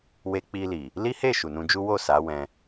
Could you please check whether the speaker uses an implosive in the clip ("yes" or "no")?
no